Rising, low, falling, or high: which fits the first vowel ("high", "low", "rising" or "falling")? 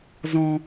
low